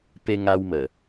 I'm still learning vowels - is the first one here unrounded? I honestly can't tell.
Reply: yes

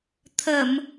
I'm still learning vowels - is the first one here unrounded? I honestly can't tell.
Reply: yes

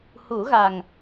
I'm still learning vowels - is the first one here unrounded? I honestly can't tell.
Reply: no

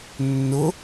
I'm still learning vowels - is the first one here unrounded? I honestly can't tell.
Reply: no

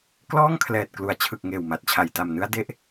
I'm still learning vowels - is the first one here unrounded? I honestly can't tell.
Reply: no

